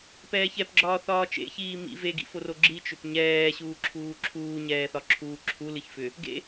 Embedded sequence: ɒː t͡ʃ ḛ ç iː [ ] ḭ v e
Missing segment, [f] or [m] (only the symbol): m